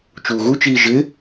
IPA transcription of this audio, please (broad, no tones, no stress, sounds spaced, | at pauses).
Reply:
t͡ʃ uː ɣ u t͡ʃ iː ʒ ɪ